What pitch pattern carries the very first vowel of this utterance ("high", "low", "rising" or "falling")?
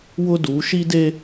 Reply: high